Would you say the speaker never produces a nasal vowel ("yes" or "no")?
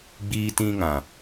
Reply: no